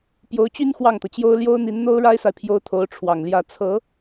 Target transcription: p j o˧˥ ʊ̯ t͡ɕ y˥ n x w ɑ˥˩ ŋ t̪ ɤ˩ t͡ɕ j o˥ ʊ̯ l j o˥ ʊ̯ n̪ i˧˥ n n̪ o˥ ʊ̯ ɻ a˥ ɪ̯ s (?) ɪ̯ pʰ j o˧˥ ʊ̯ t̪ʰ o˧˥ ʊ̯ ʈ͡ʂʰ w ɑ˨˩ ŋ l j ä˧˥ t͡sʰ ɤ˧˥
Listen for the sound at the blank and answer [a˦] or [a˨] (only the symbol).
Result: a˨